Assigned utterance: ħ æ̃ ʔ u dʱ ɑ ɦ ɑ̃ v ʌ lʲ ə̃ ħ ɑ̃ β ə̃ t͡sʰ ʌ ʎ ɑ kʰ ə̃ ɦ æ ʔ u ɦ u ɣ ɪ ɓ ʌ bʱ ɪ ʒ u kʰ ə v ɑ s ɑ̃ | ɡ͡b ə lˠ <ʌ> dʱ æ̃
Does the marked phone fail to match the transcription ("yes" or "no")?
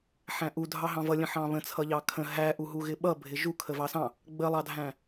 yes